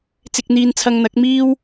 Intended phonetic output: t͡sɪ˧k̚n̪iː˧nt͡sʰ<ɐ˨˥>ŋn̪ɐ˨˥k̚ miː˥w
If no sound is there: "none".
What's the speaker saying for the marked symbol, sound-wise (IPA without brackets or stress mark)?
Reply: ɐ˧